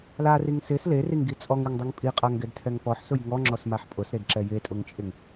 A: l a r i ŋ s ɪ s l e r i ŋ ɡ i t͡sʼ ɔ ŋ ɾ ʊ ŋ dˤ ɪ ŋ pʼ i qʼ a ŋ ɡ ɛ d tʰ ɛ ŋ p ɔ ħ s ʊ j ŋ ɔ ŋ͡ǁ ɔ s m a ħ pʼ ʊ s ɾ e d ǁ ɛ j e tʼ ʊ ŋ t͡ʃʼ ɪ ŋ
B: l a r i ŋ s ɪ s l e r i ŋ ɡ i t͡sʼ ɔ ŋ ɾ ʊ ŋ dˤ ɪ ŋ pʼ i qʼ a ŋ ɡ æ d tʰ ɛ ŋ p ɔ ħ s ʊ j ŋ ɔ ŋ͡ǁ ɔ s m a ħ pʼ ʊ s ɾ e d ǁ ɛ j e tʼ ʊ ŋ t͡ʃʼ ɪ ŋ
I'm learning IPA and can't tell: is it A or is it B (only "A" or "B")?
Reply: A